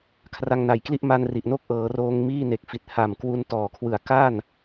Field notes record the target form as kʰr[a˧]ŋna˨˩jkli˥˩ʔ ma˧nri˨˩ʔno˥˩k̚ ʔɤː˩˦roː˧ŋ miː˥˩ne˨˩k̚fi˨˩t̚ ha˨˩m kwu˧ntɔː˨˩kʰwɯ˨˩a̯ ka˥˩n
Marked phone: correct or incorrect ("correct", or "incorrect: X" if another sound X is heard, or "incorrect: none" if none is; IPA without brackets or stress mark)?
correct